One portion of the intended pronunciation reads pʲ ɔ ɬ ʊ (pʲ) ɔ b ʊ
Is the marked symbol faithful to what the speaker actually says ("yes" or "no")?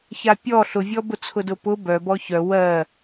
no